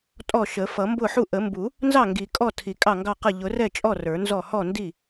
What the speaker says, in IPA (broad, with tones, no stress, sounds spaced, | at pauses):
tʼ ɔ˥˩ ʃ ə˨˩˦ f ʌ˨˩˦ m b ʊ˥˩ ħ u˥˩ ʔ ə˨˩˦ m b u˨˩˦ | n z ɑ˥˩ ŋ ɡ i˨˩˦ kʼ ɔ˥˩ tʰ i˨˩˦ kʼ ɑ˥˩ ŋ ɡ ɑ˥˩ q ə˥˩ ʎ ʊ˨˩˦ r ɛ˥˩ t͡ʃʼ ɔ˥˩ r ə˞˨˩˦ n z ɔ˥˩ h ɔ˥˩ n d i˥˩